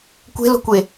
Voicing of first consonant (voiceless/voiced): voiceless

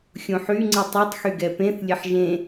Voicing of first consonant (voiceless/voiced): voiceless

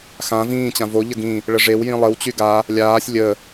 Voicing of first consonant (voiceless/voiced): voiceless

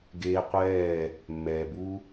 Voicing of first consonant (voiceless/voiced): voiced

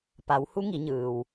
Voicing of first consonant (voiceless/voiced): voiceless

